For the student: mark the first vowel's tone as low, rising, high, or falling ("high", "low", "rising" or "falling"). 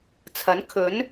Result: rising